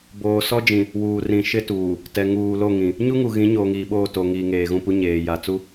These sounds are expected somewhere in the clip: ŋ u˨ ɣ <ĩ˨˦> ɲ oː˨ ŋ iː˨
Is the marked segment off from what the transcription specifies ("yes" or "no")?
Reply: no